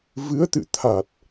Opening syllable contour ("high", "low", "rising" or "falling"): rising